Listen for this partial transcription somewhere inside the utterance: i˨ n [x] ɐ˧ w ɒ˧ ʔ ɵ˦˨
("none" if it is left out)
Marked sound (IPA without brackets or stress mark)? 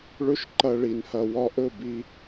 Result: h